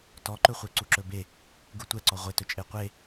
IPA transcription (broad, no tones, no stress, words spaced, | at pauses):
tɔǃɵχʷe ǀuǁɵbe | ɡutʷɛǀɔ ʁʷetɵ t͡ʃʼeqʷe